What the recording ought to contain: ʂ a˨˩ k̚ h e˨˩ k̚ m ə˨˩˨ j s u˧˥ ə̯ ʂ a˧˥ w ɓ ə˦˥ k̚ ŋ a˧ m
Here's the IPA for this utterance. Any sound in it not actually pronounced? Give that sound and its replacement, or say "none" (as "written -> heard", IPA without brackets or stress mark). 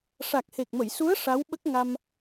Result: none